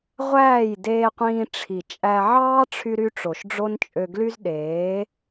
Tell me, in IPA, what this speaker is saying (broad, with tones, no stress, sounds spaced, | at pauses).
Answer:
ʁʷ æː˦˨ j d eː˧ qʷ ĩː˧ ʈ͡ʂʰ i˨ t͡ʃʼ æ˧ ʕ ɑː˦ ʈ͡ʂʰ y˧ ɾ y˧ ʈ͡ʂ o˨ ʃ ɖ͡ʐ o˦ n t͡ʃʼ ø˧ ɡ l y˦ z ɗ eː˨˦